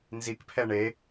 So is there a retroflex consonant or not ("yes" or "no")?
yes